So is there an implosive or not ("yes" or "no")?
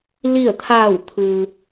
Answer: no